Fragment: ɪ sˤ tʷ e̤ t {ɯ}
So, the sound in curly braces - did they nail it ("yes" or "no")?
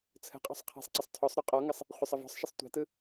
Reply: yes